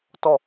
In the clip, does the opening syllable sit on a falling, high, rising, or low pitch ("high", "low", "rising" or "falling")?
falling